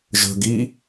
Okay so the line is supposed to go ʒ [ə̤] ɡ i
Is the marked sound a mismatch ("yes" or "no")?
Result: no